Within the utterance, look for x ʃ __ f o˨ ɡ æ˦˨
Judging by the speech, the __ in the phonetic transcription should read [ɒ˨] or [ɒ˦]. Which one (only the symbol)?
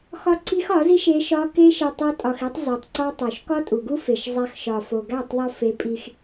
ɒ˨